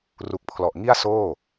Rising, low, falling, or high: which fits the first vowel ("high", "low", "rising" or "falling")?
low